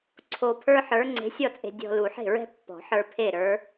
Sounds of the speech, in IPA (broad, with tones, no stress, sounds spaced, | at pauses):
ǀʰ o˧ pʰ ə˞˥ ħ ə˞˧˥ ŋ͡ǀ e̤˧˥ sʲ ɔ˥˨ t͡sʼ e̤˧ dʲ ɔ̤˧ l u˨˩˦ ħ e̤˥˨ ɹ ɛ̤˥ pː ɔ̤˨˩˦ ħ ə˞˧ pʰ e˥˨ ɾ ə˞˧˥